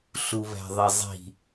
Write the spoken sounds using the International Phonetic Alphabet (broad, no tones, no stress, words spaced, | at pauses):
ɬuβæ̤ðˤizˤi̤